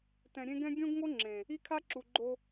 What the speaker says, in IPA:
tɛ̃˨ɾʲẽ˦ɡɛ̃˦ ɡʲõ˦ɡŋo˦ ŋ͡ǁẽ˨ | i˦kʰa˦ǁu˨ɡ͡ǃo˦

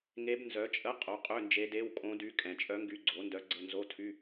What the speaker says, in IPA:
ŋe˧˥b nzœ˩˥t͡ʃʼə˧˥˧ qʼo˩˥qʼø˧˥˧nd͡ʒe˧˥ de˧˥˧wkʼõ˧˥dy˧˥ kʼɛ̃˨˩t͡ʃʼœ˧˥ŋɡy˧˥ ɡ͡ǀo˩˥ndœ˧˥ɡ͡ǀə˧˥˧ nzo˧˥˧tʰy˧˥˧

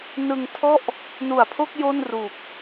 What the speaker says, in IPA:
nɯ˧ŋtʰɔ˥˩ʔ | nu˨˩a̯pʰo˥˩k̚ jo˥˩nru˨˩k̚

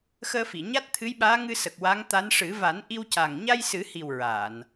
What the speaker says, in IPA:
xəː˧fi˨˩˨ɲa˦˥t̚t̪ʰɨ˧˥j ɓaː˧˥ŋɨ˧sə˨˩k̚ wa˧˥ŋt̪a˧˥n ʂɨ˨˩˦ va˨˩˦n ʔi˧wca˨˩ŋ ɲa˧jsɨ˨˩˦hi˨˩w ɹa˨˩˨n

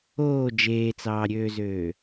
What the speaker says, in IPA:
oː d͡ʒeːt͡sɑːɾʲøːzøː

